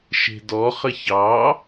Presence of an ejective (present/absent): absent